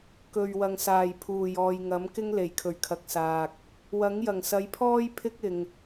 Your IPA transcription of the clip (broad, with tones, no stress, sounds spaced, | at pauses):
k ɵ˨ ɥ w ɐ˨ ŋ s aː˨˩ j pʰ uː˨˩ j ɔː˨ j ŋ ɐ˨˥ m k ɪ˥ ŋ l e˨˩ j kʰ ɵ˨˩ ɥ kʰ ɐ˨ k̚ s aː˨ k̚ | w ɐ˨˥ ŋ j ɐ˨˩ ŋ s ɐ˨˧ j pʰ ɔː˥ j pʰ ɪ˥ k̚ ɪ˨ ŋ